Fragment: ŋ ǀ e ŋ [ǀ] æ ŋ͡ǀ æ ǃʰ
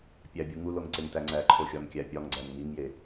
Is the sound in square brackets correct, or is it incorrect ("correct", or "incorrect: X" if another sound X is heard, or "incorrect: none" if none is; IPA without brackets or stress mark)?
incorrect: t